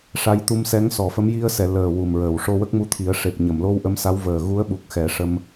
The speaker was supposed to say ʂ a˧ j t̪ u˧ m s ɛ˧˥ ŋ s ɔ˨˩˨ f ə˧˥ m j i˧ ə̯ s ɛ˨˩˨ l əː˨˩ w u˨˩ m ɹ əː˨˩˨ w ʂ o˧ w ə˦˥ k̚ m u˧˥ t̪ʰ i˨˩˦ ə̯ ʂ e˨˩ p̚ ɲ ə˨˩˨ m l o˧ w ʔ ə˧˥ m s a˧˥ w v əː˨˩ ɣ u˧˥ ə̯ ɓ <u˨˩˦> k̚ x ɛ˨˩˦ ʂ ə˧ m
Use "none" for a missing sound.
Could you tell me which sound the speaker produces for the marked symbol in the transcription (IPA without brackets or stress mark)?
u˨˩